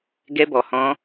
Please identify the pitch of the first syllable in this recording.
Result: high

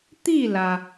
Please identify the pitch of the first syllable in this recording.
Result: falling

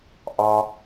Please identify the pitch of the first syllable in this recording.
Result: low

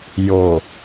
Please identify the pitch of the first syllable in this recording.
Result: low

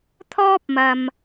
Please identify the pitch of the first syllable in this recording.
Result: high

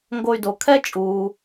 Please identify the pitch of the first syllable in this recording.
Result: low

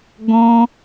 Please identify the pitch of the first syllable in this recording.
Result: high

